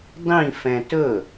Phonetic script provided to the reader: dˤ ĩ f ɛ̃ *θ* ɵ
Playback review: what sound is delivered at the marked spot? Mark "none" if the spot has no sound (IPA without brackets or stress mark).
t